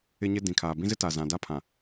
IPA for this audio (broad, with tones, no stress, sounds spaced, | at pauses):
ɪ˦ ɲ ɪ˦ d ĩ˨ kʰ aː˨ b ĩ˦ z ɪ˦ t a˨ z ã˨ d a˦ pʰ ã˨